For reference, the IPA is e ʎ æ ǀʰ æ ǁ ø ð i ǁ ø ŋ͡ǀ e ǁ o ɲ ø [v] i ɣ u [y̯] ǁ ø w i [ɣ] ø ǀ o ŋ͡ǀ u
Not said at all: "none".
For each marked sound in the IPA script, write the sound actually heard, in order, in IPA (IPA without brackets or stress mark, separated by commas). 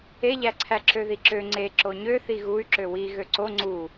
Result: θ, y̯, ɣ